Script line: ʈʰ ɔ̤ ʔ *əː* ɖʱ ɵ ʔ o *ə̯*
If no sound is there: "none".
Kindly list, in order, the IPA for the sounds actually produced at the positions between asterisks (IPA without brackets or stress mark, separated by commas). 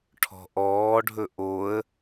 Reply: ɔː, ə̯